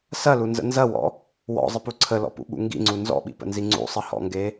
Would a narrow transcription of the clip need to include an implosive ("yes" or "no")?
yes